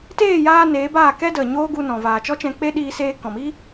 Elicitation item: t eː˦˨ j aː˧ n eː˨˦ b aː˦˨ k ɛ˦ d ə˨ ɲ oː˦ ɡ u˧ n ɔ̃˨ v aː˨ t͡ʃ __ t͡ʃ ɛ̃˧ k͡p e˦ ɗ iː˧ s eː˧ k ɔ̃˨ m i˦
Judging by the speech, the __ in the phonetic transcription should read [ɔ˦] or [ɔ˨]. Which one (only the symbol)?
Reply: ɔ˦